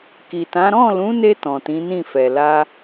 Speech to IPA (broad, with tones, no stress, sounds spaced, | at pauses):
k i˨ t ã˨˦ ɾ ɔ̃˦˨ l ũ˨˦ n e˧ t ɔ̃˨ t ĩ˨˦ n ĩ˦˨ f ɛ˨ l a˧